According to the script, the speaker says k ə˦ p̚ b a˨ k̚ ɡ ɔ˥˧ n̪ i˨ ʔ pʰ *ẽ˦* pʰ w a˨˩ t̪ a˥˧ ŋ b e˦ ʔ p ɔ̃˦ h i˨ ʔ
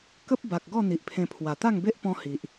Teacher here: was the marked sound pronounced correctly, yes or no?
no